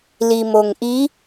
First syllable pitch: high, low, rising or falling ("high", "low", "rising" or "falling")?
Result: low